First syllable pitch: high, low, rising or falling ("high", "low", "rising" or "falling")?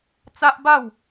high